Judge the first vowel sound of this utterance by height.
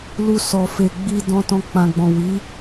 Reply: high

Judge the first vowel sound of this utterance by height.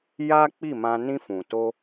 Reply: low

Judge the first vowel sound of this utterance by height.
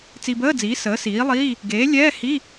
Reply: high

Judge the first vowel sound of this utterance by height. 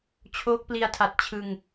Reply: mid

